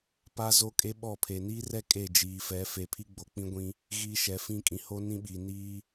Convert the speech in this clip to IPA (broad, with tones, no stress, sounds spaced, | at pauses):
p a˦ z o˦ kʼ e˦ ɓ ɔ˦˨ pʰ e˨ n iː˦ r ɛ˦ kʼ e˦˨ d͡ʒ iː˨ f ɛ˨˦ f e˨ pʰ i˦ ɡ͡b o˨ k͡p ĩ˦ ɡʷ ĩ˦ | ɣ iː˦ ʃ ɛ˨˦ f ĩ˦ kʼ ĩ˨ h o˦ n ĩ˦ ɓ iː˨ n iː˦